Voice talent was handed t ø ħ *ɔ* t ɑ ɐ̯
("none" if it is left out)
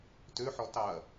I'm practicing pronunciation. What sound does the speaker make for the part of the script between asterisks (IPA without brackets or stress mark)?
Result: ɔ